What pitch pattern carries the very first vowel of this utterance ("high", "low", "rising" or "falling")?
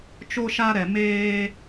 high